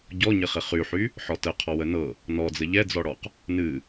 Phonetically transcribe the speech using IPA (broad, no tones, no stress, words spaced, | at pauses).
ɟɔɲɪ χɪχyħy | ħɔtə qʰɔwənɤ | nɔd͡zə ʎɛd͡zɔɽɔq | nɨ